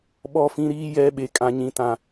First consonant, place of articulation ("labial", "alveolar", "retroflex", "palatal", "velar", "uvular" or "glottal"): labial